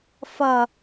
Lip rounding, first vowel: unrounded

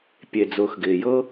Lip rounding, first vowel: unrounded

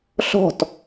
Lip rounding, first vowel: rounded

